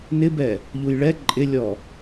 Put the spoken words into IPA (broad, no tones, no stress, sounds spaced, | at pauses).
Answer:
n ɪ b ɛ | ʎ u j ɭ ɛ ǃʼ ɪ lʲ ɔ